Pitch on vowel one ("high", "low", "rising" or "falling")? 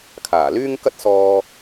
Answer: low